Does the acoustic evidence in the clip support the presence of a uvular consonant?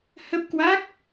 no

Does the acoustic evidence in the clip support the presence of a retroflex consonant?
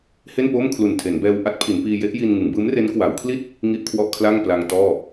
no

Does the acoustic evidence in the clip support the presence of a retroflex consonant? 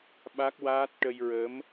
yes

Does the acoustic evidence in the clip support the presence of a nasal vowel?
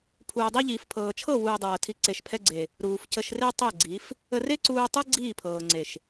no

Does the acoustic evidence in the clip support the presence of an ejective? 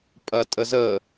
yes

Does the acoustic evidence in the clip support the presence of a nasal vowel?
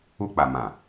yes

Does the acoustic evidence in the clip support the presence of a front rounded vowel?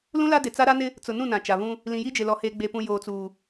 no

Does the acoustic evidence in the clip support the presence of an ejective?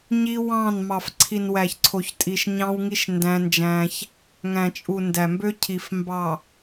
yes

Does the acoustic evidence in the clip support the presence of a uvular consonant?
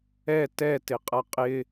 yes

